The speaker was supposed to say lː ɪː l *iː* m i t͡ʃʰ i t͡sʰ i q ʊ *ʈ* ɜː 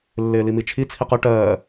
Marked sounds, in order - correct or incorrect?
incorrect, correct

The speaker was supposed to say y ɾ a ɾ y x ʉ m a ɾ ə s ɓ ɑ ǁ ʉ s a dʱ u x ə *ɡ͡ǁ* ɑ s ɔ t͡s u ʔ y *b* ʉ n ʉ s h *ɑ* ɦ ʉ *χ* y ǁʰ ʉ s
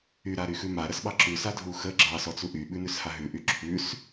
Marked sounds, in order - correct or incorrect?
correct, incorrect, incorrect, incorrect

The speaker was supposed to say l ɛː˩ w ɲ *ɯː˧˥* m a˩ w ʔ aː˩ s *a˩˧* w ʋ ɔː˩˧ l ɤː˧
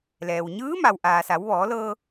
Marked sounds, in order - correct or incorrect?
correct, correct

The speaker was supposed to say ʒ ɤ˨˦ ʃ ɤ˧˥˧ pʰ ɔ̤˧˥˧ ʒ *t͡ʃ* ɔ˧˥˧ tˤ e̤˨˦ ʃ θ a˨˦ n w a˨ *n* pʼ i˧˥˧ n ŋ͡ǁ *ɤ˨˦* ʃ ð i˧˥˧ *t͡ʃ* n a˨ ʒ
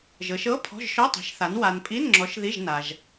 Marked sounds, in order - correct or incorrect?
incorrect, correct, incorrect, incorrect

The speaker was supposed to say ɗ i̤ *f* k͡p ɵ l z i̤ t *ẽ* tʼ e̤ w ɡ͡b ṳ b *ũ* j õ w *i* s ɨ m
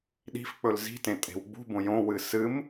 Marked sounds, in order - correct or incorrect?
correct, correct, incorrect, incorrect

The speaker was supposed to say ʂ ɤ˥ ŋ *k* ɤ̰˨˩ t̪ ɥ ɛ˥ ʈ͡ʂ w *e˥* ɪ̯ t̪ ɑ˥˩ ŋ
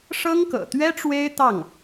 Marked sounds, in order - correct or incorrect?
correct, correct

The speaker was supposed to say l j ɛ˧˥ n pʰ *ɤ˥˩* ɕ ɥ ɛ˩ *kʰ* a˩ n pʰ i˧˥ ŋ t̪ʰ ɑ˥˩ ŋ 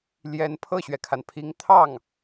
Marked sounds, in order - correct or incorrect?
correct, correct

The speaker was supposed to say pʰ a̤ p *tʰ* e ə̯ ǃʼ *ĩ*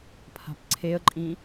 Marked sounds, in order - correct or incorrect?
incorrect, correct

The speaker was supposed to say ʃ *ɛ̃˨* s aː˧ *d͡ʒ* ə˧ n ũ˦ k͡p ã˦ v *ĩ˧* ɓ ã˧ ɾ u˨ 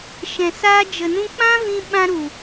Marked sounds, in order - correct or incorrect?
correct, correct, correct

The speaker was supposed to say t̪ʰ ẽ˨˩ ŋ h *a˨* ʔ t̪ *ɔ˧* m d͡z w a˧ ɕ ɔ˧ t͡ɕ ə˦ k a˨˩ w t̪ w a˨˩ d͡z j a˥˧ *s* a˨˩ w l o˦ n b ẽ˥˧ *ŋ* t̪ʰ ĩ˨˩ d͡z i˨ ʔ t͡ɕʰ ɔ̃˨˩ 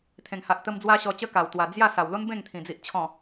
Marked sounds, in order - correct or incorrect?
correct, incorrect, correct, correct

